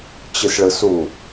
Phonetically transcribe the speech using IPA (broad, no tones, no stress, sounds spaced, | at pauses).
t͡ɕ ɨ s ɭ ɯ s u